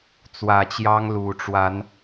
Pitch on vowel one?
low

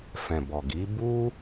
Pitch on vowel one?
low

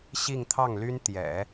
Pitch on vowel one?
falling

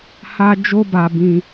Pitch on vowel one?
high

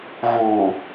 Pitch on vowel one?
low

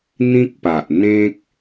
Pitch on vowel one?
high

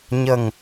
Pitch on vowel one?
low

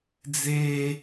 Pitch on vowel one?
high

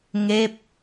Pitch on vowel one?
falling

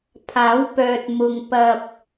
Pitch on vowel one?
rising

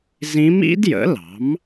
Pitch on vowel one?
rising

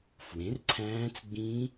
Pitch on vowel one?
rising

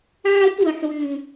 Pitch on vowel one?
high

